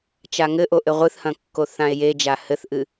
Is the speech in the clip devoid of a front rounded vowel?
yes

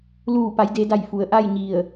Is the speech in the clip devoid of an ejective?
yes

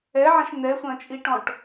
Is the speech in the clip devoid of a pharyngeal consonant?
no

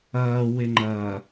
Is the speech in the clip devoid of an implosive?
yes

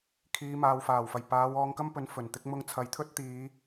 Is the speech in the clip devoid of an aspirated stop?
no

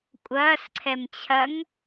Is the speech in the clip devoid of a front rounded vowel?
yes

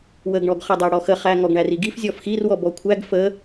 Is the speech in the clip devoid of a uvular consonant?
no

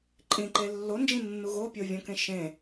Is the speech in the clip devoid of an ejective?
no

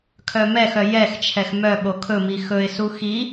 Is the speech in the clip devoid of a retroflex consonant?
yes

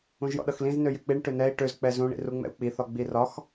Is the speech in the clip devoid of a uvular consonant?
yes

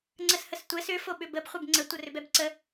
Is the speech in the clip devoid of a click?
no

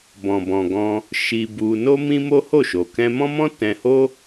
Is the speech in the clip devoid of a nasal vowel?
no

